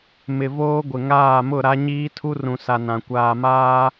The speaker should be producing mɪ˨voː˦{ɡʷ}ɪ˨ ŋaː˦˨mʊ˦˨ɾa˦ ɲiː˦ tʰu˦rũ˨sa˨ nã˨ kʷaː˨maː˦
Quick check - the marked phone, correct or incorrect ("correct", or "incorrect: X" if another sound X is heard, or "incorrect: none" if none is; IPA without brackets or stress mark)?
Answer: correct